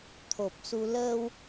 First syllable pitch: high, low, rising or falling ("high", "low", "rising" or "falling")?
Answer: low